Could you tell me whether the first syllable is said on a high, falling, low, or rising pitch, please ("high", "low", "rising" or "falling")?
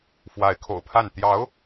rising